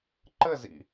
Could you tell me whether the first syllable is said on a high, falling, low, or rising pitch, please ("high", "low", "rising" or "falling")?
falling